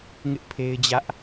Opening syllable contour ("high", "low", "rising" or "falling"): high